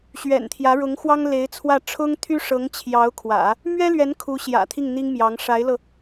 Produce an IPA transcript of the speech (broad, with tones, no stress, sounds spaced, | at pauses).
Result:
ɕ ɥ ɛ̰˨˩ n t̪ʰ j ä˧˥ ɻ ʊ˧˥ ŋ x w ɑ˥ ŋ l e˧˥ ɪ̯ t͡sʰ w ä˥˩ ʈ͡ʂʰ ʊ˥ ŋ t̪ʰ y˥ ʂ ɤ˧˥ ŋ t͡ɕʰ j ɑ˧˥ ʊ̯ kʰ w ä̰˨˩˦ | m ɥ ɛ˥ l ɥ ɛ˧˥ n kʰ u˧˥ ɕ j ä̰˨˩ t̪ʰ i˥˩ ŋ n̪ i˥ ŋ m j ɑ˧˥ ŋ ʂ a˧˥ ɪ̯ l ɤ˧